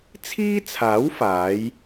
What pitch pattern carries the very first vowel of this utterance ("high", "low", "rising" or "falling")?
high